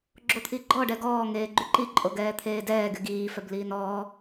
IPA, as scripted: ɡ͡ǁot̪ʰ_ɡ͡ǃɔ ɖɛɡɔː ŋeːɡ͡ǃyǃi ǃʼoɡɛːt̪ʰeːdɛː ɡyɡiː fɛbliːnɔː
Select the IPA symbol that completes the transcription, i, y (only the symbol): i